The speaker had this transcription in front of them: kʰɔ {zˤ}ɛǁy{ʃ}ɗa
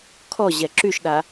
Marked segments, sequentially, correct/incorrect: incorrect: ʑ, correct

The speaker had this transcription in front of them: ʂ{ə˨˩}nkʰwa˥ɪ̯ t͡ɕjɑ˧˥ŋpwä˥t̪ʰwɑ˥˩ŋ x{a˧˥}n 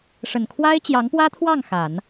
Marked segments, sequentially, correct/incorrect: correct, incorrect: a˨˩˦

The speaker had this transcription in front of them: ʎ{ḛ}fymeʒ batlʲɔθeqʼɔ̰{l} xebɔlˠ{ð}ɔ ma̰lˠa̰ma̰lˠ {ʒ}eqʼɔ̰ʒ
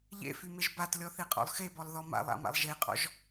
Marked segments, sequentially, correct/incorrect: correct, incorrect: lˠ, correct, correct

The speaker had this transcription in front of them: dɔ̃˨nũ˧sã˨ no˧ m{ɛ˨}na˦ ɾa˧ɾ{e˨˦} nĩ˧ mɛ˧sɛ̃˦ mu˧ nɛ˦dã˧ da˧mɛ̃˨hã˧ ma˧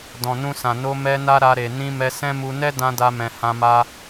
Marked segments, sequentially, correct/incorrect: incorrect: ɛ˦, incorrect: e˨

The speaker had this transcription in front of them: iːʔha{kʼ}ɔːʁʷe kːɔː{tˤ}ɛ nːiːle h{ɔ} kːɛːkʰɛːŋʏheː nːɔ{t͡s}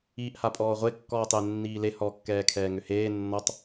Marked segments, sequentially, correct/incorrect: incorrect: pʼ, correct, correct, incorrect: tˤ

